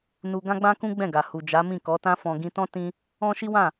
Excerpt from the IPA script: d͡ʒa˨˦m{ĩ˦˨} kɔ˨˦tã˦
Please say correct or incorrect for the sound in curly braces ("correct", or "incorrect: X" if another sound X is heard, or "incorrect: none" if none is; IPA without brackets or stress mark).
correct